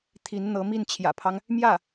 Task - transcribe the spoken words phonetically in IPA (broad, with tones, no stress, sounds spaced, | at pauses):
t̪ʰ i˧˥ n n̪ ɤ˧˥ m i˥˩ n t͡ɕʰ j ä̰˨˩ pʰ ɑ˦ ŋ | m j ä˥˩